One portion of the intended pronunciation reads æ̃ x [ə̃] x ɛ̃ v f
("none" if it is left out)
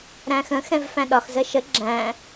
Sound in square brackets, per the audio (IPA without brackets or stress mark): ə̃